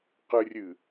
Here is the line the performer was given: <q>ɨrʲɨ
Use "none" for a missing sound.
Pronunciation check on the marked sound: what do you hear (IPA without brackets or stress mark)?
q